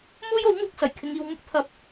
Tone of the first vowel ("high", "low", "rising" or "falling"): high